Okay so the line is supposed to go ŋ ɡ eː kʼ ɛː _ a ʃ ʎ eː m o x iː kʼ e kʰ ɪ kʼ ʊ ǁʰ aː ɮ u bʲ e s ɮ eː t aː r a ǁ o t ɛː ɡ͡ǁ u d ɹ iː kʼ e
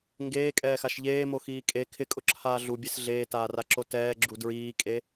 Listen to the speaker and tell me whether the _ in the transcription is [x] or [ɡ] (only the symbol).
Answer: x